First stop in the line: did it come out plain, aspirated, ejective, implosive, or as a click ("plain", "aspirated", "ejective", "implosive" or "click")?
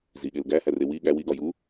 implosive